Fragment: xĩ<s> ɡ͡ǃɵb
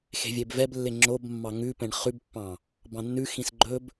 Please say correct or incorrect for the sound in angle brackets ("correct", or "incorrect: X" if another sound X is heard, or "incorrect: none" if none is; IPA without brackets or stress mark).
correct